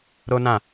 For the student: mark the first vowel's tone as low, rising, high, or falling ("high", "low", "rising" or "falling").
high